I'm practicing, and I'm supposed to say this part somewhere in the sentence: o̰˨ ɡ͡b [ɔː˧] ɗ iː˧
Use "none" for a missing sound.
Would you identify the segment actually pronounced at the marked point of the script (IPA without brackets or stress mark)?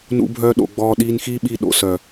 ɔː˧